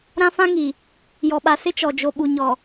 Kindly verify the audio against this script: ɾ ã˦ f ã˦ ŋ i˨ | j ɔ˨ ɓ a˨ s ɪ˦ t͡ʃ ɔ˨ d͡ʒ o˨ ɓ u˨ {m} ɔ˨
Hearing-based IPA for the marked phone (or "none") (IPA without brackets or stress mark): ɲ